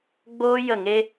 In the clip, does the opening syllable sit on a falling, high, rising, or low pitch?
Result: high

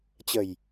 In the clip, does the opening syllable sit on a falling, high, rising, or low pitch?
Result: low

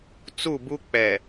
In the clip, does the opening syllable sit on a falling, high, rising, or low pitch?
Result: falling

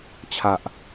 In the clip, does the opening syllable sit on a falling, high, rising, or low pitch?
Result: low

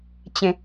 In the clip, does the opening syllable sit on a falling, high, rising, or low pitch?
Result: low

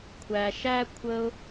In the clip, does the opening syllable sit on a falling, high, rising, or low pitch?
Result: low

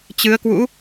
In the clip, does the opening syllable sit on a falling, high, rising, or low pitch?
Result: rising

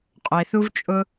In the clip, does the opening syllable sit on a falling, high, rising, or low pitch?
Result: low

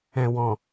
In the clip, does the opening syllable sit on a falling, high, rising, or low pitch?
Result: low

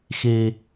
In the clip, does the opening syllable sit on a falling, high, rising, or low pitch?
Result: high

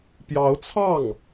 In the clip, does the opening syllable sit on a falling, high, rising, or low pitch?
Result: rising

